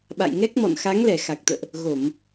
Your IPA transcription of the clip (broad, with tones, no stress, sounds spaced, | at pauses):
ɓ a̰˧˨ j ŋ ɛ˦˥ k̚ m ɔ̰˧˨ n x a˨˦ ŋ l ɛ˧˩ x a˨˩ k̚ t̪ ə̰ː˧˨ ʔ | ɣ o˧˩˨ m